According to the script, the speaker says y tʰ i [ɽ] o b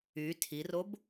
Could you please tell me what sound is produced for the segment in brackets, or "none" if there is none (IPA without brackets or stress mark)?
r